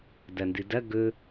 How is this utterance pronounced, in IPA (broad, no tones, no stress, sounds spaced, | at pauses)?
d ɐ n d ɨ d ɐ ɡ ɵ